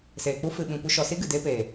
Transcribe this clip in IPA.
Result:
seː˨k͡pu˦ fɨ˧ɓĩ˧kʷɨ˦ ʃɔ˨si˦ ɡɨ˨deː˦peː˨

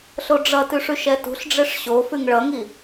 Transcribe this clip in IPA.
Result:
ɬoɖ͡ʐʌtʉʂ ʉʃɛtṳɬɖ͡ʐeʂ ɕo fʉŋɭʌŋi

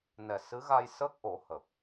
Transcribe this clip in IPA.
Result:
nɛ˨˩sɨ˧˥ɣa˧j sə˦˥k̚ʔo˨˩˦hə˨˩k̚

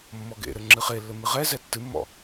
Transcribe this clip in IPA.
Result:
mːɔɡḛɾɘ ŋ͡ǁɨχelːɘ mɨʁɛzɛ tːɨmːɔ̰

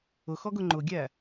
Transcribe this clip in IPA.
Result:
ʊxɔɡʊ ŋ͡ǃʊɡʲæ

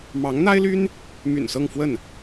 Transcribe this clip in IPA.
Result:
mɑ˧˥ŋn̪a˥ɪ̯ly˥n | my̰˨˩nsɤ˥˧ŋfwə˥˩n

